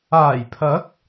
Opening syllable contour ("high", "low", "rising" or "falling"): low